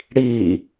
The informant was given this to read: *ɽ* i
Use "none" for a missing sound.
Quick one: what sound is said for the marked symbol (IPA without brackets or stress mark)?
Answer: ɽ